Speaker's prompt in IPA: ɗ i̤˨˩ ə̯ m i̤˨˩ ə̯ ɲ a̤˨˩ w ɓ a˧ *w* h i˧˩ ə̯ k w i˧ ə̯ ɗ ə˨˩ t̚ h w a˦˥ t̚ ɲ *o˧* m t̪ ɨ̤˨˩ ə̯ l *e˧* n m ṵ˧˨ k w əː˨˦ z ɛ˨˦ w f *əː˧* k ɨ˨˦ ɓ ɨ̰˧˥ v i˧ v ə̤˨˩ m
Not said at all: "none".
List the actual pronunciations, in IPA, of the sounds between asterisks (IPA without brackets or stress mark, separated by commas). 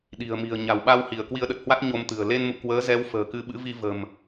w, o˧, e˧, ə̤ː˨˩